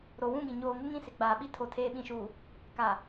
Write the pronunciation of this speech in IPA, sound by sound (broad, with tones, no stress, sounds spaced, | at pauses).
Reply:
ɾ o˨ w ũ˦˨ ɡ ĩ˨ ɲ oː˨ ŋ ɪ˦ ŋ ĩ˦˨ s ɪ˨ ɡ͡b aː˨ ɓ i˦ tʰ o˨ tʰ eː˨ ɓ ĩ˨ ʃ uː˨ | k a˨